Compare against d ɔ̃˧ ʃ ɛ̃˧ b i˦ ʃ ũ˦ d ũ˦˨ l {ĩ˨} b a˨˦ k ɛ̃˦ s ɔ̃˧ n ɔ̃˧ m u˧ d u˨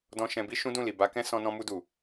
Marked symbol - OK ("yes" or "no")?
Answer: no